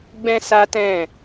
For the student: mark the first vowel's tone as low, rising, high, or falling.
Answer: high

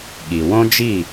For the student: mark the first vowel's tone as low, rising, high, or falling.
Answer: low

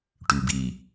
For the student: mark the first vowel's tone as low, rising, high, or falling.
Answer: low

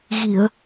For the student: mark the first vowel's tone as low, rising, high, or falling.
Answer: low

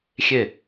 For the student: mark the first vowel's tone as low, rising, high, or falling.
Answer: falling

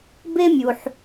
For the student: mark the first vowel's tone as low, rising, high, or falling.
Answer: high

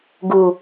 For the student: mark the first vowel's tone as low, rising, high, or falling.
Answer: low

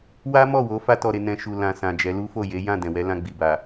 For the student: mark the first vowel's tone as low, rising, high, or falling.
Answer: high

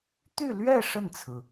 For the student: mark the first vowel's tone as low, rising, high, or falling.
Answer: falling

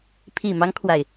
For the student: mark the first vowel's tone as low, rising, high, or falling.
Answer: low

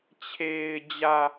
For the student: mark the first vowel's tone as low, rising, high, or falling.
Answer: low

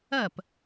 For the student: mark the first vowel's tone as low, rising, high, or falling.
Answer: falling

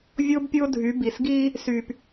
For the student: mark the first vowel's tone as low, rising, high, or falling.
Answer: high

